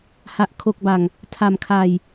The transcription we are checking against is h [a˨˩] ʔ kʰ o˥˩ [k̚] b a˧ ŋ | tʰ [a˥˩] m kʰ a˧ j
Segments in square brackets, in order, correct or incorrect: incorrect: a˥˩, correct, incorrect: a˧

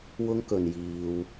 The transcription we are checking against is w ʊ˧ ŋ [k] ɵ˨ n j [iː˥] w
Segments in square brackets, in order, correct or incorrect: correct, incorrect: iː˨

